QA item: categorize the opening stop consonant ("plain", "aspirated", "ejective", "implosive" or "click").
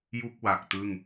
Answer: plain